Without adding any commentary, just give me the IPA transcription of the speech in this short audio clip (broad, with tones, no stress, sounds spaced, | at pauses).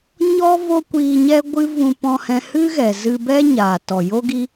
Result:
ɲ ɔ˦ v o˦ kʷ iː˧ ɲ ɛ˦ ɡʷ ɨ˦ v ũ˧ p ɔ̃˧ h ɛ̃˧ h ɨ˦ ɣ ɛ˨ z ɨ˧ b ɛ˦ ɲ aː˨ t ɔ˨ j o˦ ɡ i˦